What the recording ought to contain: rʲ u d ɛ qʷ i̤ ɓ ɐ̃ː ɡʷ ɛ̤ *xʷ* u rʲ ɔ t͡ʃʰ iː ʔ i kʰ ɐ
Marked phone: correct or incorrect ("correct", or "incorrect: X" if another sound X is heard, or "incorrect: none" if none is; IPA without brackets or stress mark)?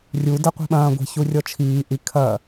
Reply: incorrect: ç